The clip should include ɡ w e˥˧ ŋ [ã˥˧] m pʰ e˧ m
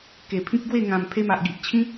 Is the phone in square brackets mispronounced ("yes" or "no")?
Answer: yes